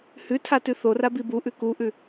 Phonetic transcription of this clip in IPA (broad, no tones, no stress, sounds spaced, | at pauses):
h ʉ tʰ a t ʉ θ o r a b i b u ʔ ʉ k u ʔ ʉ